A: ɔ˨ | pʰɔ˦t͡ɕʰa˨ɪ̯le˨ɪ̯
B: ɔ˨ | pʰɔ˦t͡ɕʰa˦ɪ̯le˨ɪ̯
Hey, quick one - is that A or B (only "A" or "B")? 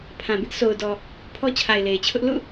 A